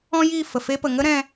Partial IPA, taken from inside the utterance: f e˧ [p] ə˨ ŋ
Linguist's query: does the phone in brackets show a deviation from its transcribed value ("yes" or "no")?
no